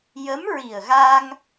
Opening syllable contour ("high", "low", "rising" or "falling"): rising